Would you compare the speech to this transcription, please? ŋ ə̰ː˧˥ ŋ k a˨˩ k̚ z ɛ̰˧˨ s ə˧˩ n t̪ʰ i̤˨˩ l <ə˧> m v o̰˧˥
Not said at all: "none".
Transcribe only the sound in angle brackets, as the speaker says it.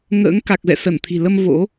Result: ə˧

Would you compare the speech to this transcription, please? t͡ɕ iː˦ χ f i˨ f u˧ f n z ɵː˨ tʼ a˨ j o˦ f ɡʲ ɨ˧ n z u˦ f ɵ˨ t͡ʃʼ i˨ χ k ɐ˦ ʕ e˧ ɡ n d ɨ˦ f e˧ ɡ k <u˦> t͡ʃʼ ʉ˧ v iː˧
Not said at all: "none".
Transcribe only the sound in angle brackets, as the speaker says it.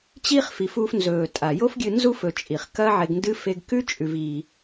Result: ʉ˦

